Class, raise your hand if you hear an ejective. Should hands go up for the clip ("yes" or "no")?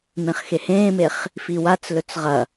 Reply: no